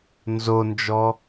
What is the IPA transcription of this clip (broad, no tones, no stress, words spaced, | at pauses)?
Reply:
nzond͡ʒɔ